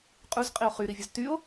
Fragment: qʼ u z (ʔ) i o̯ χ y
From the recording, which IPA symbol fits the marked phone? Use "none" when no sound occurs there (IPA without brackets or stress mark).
qʼ